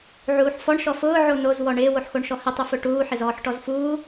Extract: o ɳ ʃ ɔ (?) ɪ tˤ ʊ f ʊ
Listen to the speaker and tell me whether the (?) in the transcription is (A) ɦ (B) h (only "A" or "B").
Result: B